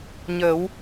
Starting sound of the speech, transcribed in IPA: ɲ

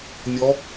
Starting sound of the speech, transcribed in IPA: nʲ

